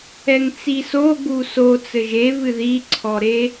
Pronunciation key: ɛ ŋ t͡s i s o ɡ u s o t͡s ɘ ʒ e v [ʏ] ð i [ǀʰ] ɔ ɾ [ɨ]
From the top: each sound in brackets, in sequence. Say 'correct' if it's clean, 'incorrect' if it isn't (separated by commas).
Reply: incorrect, correct, incorrect